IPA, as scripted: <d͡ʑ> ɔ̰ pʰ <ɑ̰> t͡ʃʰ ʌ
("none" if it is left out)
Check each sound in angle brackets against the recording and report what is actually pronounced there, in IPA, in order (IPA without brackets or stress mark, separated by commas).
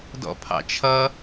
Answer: d, ɑ̰